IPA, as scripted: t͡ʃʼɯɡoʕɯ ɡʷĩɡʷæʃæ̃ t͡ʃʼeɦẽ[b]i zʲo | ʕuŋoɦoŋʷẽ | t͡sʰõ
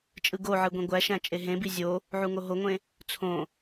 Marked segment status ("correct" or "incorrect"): correct